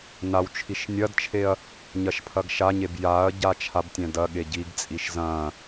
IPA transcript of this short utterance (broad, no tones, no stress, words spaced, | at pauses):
nawt͡ʃʰiʃ nʲɐdt͡ʃʰeɐ̯ | ɲɐʃpʰɐɡʃaɲeb jaɐ̯ ɟat͡ʃʰabtʲɛ̃ dɐ ɠeɟiɡt͡sʼiʃ zɐ̃